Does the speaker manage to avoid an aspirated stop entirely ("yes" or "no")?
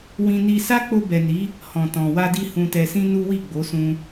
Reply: yes